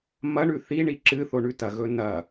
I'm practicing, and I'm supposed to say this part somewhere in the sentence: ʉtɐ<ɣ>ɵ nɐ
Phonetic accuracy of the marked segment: correct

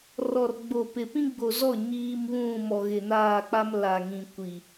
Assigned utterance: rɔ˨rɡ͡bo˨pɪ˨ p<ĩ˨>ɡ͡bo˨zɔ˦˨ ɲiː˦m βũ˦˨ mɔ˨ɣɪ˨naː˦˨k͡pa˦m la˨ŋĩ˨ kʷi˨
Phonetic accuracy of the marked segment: incorrect: ĩ˦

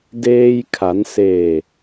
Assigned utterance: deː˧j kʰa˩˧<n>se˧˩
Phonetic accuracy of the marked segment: correct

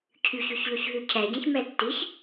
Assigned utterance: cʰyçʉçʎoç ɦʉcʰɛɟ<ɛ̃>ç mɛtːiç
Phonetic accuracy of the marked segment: correct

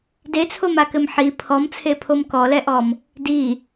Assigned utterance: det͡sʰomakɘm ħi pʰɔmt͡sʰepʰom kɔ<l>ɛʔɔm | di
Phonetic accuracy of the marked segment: correct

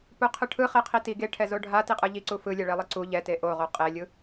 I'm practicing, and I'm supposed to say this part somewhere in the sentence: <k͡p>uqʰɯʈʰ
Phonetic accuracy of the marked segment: incorrect: p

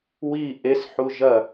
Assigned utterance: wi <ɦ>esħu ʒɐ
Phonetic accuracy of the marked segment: incorrect: ʔ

